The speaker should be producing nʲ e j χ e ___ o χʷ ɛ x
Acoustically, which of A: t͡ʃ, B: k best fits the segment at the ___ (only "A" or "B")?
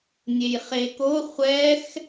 B